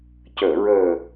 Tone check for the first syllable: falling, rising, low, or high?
low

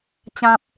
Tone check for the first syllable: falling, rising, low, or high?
high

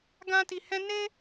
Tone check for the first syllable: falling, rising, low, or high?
high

